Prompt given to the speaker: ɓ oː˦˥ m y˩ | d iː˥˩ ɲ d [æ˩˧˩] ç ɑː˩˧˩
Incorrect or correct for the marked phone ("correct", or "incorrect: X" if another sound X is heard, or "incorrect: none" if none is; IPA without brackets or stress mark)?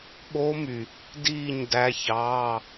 correct